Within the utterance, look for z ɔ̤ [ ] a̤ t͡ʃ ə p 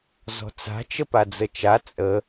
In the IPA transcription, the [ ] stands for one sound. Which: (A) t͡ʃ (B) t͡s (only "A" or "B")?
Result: B